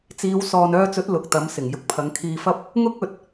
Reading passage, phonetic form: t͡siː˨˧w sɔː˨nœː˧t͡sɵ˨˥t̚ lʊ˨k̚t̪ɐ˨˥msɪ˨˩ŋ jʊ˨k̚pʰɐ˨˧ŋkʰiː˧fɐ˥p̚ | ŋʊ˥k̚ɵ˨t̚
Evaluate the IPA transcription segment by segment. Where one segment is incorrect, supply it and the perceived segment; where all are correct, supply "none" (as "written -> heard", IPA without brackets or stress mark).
none